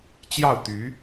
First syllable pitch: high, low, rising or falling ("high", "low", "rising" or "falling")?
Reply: falling